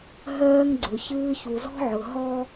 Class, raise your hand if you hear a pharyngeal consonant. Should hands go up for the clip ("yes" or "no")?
yes